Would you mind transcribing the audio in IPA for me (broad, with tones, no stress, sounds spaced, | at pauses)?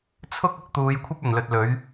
t͡sʰ ʊ˥ k̚ ʊ˧ k̚ t̪ uː˨˧ j kʷʰ ɐ˥ p̚ ɵ˨˩ n l ɵ˧ t̚ l ɵ˨˥ ɥ